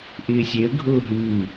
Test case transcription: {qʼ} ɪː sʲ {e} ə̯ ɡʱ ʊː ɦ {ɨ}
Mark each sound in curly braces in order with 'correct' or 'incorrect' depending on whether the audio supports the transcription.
incorrect, correct, incorrect

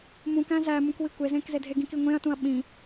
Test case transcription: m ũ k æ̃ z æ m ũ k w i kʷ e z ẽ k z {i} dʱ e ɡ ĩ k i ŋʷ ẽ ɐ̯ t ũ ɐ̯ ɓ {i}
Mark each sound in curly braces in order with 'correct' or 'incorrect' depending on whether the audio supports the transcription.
incorrect, incorrect

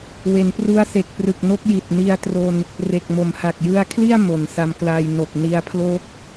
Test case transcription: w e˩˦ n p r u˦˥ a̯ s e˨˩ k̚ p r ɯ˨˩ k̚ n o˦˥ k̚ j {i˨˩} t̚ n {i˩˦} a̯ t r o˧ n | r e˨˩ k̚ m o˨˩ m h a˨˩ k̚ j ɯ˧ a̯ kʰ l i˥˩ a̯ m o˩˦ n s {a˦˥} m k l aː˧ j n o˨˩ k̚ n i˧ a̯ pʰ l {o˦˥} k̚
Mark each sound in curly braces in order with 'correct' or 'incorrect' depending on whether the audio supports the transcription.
correct, incorrect, incorrect, correct

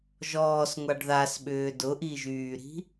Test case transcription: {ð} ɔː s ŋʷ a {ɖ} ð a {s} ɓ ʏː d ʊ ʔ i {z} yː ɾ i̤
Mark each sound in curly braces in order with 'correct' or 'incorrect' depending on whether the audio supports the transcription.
incorrect, correct, correct, incorrect

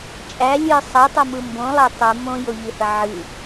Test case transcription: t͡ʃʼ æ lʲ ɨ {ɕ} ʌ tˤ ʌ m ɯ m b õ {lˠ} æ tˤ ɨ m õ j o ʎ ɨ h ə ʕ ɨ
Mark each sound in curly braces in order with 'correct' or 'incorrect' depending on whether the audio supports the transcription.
incorrect, correct

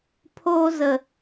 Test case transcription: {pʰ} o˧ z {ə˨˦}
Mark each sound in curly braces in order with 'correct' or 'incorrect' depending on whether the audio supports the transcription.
correct, incorrect

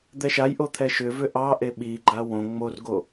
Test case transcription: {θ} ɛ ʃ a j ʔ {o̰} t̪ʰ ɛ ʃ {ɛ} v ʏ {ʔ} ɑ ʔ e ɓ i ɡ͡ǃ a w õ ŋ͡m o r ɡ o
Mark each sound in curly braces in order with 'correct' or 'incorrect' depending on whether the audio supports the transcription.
incorrect, incorrect, incorrect, correct

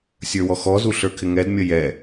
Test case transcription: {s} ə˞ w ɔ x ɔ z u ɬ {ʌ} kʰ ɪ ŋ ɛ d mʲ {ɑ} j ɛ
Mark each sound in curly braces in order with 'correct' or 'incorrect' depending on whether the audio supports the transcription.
incorrect, incorrect, incorrect

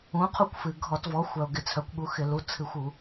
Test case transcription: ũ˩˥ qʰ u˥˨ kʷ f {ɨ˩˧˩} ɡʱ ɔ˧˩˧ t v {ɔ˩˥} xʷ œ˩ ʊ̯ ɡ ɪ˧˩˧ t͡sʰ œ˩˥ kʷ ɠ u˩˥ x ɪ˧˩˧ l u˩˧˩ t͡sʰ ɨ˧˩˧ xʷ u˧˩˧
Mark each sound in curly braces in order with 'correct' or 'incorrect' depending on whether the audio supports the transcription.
incorrect, correct

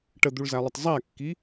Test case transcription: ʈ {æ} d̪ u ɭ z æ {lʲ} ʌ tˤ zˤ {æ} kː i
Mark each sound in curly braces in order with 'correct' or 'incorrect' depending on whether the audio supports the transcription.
incorrect, incorrect, correct

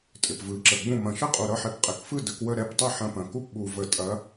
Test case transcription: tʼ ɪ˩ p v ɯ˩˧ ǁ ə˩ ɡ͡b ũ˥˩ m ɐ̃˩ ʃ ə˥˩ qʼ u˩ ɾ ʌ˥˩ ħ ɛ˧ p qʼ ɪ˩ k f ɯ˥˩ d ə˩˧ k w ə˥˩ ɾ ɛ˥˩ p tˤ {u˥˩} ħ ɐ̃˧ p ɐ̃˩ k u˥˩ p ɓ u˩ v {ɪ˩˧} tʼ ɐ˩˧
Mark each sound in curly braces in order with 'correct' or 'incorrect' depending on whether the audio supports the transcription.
incorrect, incorrect

